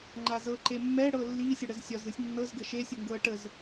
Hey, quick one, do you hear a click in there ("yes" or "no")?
yes